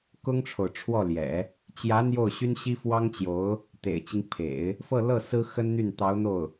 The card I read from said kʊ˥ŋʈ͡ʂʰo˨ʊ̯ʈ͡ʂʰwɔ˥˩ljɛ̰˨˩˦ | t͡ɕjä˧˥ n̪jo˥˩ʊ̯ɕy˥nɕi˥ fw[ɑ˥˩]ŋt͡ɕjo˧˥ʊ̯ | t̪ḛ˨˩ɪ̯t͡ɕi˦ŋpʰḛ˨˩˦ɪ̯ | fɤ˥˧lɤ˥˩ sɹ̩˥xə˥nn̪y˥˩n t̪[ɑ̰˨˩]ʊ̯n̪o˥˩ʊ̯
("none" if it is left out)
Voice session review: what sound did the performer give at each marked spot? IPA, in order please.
ɑ˥, ɑ˧˥

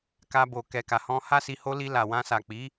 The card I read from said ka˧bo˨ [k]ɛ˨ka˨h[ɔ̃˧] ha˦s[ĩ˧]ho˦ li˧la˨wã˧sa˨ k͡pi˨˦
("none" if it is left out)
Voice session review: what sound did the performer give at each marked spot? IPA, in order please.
k, ɔ̃˧, i˧

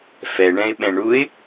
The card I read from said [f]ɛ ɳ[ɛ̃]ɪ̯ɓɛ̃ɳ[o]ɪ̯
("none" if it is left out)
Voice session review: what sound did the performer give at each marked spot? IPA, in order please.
f, ɛ̃, u

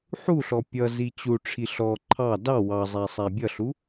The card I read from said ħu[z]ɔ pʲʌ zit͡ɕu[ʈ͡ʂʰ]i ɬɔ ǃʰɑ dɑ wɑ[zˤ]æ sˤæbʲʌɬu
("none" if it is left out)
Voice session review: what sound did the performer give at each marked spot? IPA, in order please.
ɬ, ʈ͡ʂʰ, zˤ

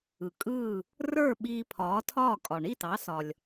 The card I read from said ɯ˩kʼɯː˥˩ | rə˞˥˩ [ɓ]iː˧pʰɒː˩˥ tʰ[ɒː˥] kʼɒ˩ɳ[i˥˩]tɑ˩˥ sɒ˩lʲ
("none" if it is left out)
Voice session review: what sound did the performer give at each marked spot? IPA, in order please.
ɓ, ɒː˥˩, i˥˩

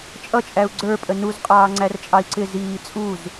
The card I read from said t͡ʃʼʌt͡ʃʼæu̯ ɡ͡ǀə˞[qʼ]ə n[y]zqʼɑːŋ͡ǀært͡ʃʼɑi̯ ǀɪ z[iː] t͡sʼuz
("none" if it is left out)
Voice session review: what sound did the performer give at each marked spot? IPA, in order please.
pʼ, u, iː

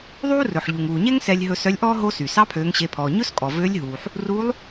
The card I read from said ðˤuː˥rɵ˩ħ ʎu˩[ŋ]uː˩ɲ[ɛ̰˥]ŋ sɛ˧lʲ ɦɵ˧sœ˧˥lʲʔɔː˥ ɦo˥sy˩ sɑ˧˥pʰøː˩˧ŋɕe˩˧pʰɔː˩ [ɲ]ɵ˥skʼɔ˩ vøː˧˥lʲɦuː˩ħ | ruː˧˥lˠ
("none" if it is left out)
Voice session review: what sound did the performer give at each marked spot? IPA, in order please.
ŋ, ɛ˥, ɲ

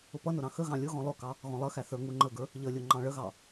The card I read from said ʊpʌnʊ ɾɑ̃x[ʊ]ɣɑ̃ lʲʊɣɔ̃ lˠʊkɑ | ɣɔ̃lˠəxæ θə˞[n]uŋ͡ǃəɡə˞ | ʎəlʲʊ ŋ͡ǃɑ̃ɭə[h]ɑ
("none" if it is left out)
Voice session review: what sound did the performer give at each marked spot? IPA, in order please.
ə, ŋ, ɣ

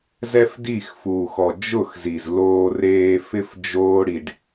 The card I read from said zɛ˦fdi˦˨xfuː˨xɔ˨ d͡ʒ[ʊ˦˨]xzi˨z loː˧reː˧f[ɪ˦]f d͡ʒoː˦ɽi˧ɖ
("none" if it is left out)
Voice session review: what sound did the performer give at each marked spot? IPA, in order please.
ʊ˦˨, ɪ˦

